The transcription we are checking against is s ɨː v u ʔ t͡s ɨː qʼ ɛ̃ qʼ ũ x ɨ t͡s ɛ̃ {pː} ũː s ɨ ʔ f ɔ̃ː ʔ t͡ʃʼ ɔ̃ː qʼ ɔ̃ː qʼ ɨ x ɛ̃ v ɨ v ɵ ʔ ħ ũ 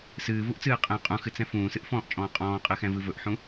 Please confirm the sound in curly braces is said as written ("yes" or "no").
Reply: no